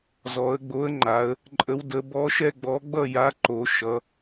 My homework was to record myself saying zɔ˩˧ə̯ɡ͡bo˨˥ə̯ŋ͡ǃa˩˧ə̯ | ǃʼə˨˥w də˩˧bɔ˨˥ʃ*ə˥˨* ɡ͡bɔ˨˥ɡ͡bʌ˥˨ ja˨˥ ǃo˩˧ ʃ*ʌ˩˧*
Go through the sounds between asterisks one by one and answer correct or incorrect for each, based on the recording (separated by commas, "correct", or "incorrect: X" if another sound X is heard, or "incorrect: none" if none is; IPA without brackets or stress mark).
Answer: incorrect: ɛ˥˨, correct